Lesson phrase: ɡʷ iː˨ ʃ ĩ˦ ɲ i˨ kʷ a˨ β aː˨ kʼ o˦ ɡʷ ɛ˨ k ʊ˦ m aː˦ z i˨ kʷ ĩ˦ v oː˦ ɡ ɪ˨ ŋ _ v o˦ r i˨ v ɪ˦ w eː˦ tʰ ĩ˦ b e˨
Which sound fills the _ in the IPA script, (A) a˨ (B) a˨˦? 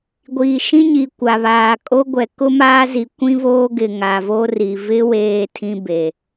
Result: A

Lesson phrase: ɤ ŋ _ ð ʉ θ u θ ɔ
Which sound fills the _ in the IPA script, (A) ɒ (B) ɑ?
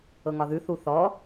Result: A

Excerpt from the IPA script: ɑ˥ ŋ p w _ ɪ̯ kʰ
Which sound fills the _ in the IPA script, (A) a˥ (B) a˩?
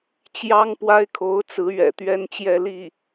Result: A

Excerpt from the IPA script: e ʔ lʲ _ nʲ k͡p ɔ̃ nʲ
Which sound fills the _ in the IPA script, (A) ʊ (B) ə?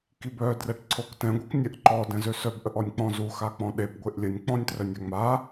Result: B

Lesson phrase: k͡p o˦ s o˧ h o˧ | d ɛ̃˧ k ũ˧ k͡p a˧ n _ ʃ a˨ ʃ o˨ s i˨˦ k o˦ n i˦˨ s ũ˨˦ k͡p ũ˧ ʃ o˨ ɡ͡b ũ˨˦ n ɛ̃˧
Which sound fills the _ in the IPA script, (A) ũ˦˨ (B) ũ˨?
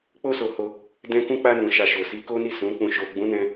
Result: B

